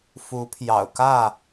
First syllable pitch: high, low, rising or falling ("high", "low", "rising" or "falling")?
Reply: rising